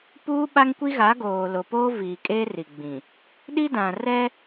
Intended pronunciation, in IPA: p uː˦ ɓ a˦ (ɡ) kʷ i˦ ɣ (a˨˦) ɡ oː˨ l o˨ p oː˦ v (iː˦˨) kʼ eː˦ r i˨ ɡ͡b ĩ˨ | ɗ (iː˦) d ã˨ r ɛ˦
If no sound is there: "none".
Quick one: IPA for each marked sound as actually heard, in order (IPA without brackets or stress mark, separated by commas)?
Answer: ŋ, a˨˦, iː˨, i˦